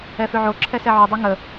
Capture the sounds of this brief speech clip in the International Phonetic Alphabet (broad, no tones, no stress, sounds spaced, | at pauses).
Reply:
ɛ f ø ʕ o ǁʰ ɛ s ɛ ʕ o dˤ ɛ ŋ ə